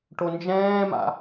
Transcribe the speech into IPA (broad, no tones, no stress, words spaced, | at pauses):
ʈond͡ʒɛ̃ːma̰